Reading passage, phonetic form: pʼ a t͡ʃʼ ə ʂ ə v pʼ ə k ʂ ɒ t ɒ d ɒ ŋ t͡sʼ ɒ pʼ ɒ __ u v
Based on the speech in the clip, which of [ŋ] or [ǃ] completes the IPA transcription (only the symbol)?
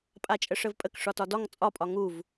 ŋ